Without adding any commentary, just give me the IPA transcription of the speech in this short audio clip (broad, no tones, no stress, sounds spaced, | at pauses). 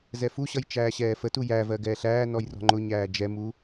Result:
z ɛ f u ɕ ʌ j t͡ʃ æː ɕ ɛː f ə t u j æ v ɜ ɡ ɛː ɬ æː n ɔ j r ɔ̤ ŋ͡ǃ ʊ ɲ æː d͡ʒ ɛ m u